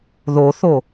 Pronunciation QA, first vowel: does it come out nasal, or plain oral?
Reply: oral